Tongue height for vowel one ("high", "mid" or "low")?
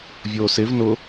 mid